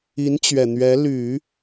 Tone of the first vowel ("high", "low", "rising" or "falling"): rising